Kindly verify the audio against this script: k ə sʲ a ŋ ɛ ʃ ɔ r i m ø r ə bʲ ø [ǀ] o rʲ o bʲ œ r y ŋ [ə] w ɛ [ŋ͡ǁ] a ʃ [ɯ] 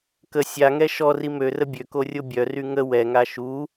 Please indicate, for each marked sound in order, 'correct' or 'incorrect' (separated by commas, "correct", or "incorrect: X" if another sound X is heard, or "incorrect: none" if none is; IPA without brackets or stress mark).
incorrect: k, correct, incorrect: ŋ, incorrect: u